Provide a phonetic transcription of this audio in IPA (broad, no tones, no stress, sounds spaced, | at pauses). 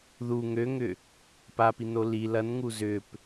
ð u ŋ ø ŋ ʏ | p a p i n o l i l ɐ n ŋ u z ʏ p